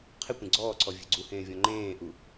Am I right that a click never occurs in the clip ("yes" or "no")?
no